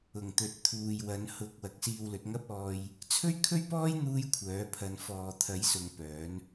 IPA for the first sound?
ʊ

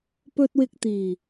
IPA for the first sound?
p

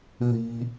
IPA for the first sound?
ð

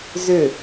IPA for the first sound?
z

